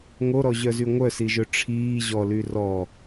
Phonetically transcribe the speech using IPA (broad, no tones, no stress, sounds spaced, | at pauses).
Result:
ŋ o ɾ ɔ ʑ œ z y ŋʷ œ s i ʒ ɵ ʈ͡ʂʰ iː ʑ ɔ l y r ɔ